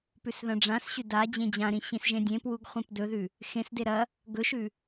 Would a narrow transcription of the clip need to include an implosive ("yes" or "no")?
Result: no